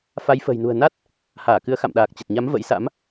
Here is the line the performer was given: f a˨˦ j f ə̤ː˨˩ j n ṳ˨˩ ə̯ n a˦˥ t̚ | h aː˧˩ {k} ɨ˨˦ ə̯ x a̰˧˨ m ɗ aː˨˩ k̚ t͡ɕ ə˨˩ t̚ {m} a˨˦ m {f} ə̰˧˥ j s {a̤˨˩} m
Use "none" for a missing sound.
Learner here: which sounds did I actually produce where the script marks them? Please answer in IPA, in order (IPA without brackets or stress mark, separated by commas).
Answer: k, ɲ, v, a̰˧˥